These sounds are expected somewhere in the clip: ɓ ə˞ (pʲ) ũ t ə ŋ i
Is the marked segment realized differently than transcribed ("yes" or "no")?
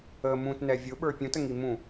no